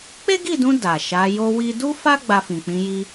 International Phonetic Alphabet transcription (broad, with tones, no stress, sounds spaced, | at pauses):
k͡p e˦ ɡ i˦˨ d ũ˧ d a˨ ʃ a˨˦ j o˦ w i˦ d u˦ f a˦ ɡ͡b a˧ f ĩ˨ k͡p ĩ˨˦ j i˧